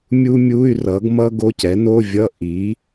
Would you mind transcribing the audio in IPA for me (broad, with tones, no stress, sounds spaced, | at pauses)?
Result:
mʲ u˥ mʲ u˧˥˧ y̯ r ʌ˩˥ ɡ m ʌ˥ ɡ o˧˥˧ c ɛ˩˥ n o˧˥˧ vʲ ʌ˧˥˧ ʔ i˩˥